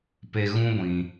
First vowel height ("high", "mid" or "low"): mid